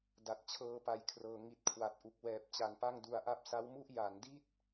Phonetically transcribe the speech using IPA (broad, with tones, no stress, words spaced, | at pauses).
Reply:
da˨˩t̚t͡ɕʰɤː˧ pa˨˩jkʰrɤː˩˦ ŋi˨˩t̚ kʰwa˨˩t̚ ʔu˨˩k̚wɛː˨˩p̚t͡ɕa˨˩n pa˥˩ŋdu˧a̯ʔa˥˩p̚ sa˦˥wmu˥˩ʔ ja˩˦ndi˥˩t̚